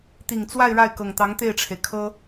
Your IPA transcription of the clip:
t̪i˨˩ŋt͡swa˥˧ɪ̯ ɻa˥˩ɪ̯kɤ˨˩ŋt̪ɑ˧˥ŋ t̪e˥˩ɪ̯ʈ͡ʂʰe˩ɪ̯kʰɤ˥

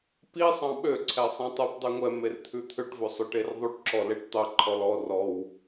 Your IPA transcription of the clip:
pi sˤɑ̃ɓø ǀʰɛsˤĩtˤup dˤʉŋʷɛ mert̪ʰʉt̪ʰøʈ vɵsˤɵʈerðˤuʈ ǁɔleʈt̪ɑ ǃʰɔlɔ rɔw

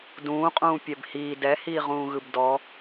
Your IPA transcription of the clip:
dũːqʼũː pʲɛbhiː dɛhiːʁũːɣɯb dɔ

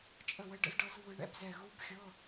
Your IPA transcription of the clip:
t͡ʃʼə˥˩wə˦˥ɖə̰˦˥zɖɤ˦˥z vɯ˦˥ɳɛ̰˧˥˧bzɛ˥˩ ɣu˦˥bxʲɤ˧˥˧

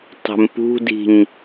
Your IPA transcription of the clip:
tˤɛ̤mpṳdi̤ɲ

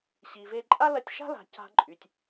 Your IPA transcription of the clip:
ɕi˨ve˧ ǃʼa˦lɐ˧tʲʃa̤˦ la̤˨ ca̤˧ǃʼy˨tʲ

